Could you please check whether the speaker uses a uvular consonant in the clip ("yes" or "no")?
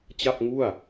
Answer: no